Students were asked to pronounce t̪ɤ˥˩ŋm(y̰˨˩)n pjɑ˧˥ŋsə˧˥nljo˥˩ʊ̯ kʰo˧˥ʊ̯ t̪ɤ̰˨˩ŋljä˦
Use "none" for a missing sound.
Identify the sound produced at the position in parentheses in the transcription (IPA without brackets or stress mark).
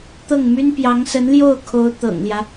y˥